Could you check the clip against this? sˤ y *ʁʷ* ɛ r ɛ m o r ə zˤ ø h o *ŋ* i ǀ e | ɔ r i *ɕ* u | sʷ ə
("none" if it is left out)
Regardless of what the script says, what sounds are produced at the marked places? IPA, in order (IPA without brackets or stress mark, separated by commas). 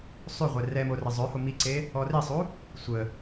ʁʷ, m, sˤ